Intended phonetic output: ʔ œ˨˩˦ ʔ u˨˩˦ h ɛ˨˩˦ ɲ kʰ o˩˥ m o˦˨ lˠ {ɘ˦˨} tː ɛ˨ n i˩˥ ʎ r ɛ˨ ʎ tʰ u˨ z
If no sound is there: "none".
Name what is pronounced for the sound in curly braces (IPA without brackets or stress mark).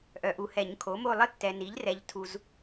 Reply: ɘ˦˨